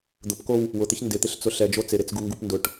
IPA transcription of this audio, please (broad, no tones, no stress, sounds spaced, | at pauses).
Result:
d̪ ʊ p k o w | w ʊ t̪ ɪ ç n d ɪ t̪ ɪ ɬ t͡s ʊ ɬ ɛ d͡ʒ o t͡s ɪ ɾ e t͡s ɡ u ŋ ɡ u p n d ʊ ʈ